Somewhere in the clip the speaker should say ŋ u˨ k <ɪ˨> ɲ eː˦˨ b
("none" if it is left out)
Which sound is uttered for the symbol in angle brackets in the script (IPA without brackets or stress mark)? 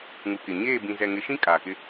ɪ˨